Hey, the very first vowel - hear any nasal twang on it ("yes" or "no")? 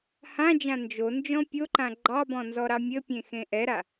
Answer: yes